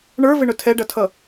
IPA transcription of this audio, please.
ɳ ə˞ v ɪ ɳ ʊ tʰ ɛ ɖ ʌ tʰ ʌ

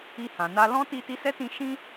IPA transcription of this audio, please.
i˧ h ã˨ n a˧ l ɔ̃˦ t i˦ t i˦ s ɛ˦ t ĩ˧ ʃ ĩ˦

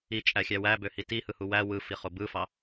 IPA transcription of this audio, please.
i t͡ʃʼ æ xʲ æ w æ b ø h i t i h ɯ h u w æ w ɯ f i χ o b ɯ f ɑ

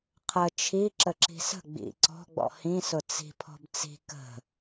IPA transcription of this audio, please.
qʰ ə t͡ʃʰ i ǁ ə ǁ i̤ s ə̤ ɡ͡b ḭ ǀ ɔ̤ ɡ͡b ɔ̰ h ĩ s ʊ t͡s i̤ pʰ ɔ̤ b t͡s i̤ k ə̤

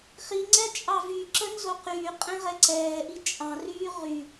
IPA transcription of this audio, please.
χ i ŋ͡ǀ ɛ t͡ʃʼ ɑ v y ǁ ə n z o q yː qʼ ɛ̃ ʁ ɛ ǀ ɛː ʔ i t͡ʃʼ ɑ̃ r yː ʁ y

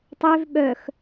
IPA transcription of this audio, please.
tˤ ø v ɓ œ x

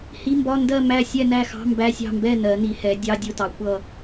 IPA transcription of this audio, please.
h i˧˥˧ m b ɒ˧˥˧ n d ɜ˥˨ m æ˥˨ sʲ ɛ˥˨ n æ˥˨ x ɑ̤˧˥˧ m b æ˧˥˧ sʲ ɑ̤˥˨ m b ɛ˥˨ n ɜ˩˧ n i˩˧ h ɛ˩˧ dʲ ɑ˧˥˧ dʲ ʊ˥˨ t ɑ˩˧ kʷ ʌ˥˨

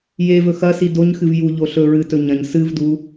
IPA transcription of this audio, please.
j e v ɵ x ɐ s i d o ɲ x ɨ v j u ʎ o ɬ ɵ ɹ ɨ t ɵ ɲ ɐ̃ ɲ s ɨ v d u

